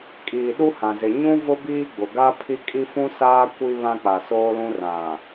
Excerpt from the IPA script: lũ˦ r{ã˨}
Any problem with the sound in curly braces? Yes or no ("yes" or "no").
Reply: no